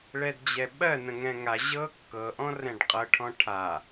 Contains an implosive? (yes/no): yes